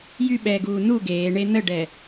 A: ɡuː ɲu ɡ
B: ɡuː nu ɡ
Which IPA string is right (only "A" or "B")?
B